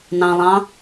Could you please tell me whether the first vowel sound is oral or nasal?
nasal